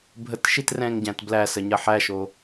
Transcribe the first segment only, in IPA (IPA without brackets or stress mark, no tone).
bʱ